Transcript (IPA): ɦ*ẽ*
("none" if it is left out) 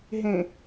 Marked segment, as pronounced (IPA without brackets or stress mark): ẽ